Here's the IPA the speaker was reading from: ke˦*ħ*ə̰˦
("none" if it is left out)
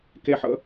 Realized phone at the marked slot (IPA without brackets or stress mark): ħ